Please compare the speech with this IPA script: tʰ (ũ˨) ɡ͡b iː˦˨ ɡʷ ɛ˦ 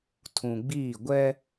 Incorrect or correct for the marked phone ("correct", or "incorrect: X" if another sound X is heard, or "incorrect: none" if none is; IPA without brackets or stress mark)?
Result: correct